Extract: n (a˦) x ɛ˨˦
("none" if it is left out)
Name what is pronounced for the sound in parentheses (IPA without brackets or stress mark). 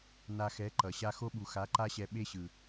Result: a˧